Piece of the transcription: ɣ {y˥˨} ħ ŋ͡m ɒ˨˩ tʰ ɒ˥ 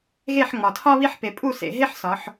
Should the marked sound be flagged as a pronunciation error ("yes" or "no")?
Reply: yes